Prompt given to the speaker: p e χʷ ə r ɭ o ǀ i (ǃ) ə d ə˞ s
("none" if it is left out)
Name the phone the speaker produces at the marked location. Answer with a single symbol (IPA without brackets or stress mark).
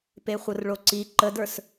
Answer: ǃ